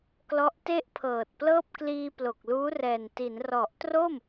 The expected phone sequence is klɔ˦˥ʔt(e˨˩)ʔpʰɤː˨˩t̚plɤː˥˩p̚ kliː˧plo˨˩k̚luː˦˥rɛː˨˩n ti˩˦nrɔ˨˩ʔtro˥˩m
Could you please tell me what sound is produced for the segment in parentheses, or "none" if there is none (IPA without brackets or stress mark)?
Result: e˥˩